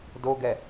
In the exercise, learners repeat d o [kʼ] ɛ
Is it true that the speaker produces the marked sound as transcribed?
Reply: no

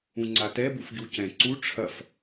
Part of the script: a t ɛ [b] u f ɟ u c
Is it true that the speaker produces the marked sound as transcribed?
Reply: yes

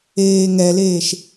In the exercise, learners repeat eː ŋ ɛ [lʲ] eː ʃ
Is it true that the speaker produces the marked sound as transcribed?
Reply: no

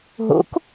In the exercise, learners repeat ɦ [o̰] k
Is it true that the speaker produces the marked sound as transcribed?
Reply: yes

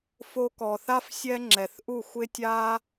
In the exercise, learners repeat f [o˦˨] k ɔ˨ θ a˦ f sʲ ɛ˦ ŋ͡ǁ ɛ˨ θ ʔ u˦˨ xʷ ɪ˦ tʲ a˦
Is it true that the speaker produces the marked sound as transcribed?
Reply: no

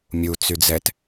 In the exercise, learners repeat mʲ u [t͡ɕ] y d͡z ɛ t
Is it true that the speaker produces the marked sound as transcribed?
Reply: no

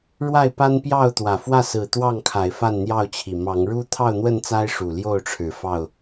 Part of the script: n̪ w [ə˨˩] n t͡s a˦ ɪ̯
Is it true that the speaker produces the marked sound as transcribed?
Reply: no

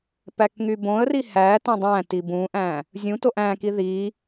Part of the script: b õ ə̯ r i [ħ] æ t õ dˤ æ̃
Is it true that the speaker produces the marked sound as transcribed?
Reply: no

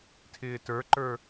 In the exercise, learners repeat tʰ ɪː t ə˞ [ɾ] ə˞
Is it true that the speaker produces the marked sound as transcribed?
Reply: no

